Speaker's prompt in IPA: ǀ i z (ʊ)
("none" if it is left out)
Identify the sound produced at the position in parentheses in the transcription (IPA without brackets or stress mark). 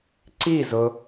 ʊ